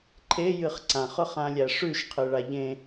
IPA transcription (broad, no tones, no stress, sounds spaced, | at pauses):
ǃʰ e j ɨ χ ǀ ã χ ʊ χ ã lʲ æ ʂ ʉ ʃ qʰ ɨ ɭ a ʎ ẽ